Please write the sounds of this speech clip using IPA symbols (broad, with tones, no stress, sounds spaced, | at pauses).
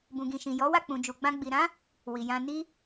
b ũ˨ ɡ ĩ˨ ʃ ĩ˨ j ɔ˨˦ w a˦˨ k͡p ũ˨ d͡ʒ u˨ ɡ͡b ã˧ ɡ͡b i˨ ɾ ã˨˦ | w i˨ j ã˧ n i˦